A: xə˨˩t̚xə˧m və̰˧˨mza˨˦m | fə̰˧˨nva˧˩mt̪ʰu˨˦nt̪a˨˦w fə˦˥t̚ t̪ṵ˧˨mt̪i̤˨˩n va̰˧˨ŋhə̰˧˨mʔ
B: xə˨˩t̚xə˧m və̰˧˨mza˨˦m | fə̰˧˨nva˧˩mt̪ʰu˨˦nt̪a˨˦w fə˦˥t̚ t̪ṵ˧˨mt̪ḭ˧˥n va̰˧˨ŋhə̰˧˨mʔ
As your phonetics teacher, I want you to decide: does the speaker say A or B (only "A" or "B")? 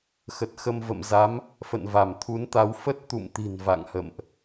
A